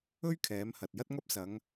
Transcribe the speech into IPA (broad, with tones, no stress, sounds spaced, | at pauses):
ɵ˥ ɥ kʰ ɛː˨˧ m h ɐ˨ t̚ j ɐ˥ t̚ ŋ ɐ˥ p̚ s ɐ˨˧ ŋ